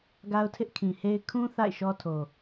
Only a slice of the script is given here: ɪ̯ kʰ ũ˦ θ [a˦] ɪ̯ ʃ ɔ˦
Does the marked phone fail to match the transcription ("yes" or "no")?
yes